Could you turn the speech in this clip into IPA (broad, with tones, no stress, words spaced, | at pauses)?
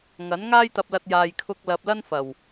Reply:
ŋɐ˨˥n ŋaː˥jt̪ɐ˧p̚lɐ˧t̚ jaː˨jkʰʊ˧k̚lɐ˨p̚ lɐ˥nfɐ˨˩w